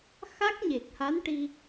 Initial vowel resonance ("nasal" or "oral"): oral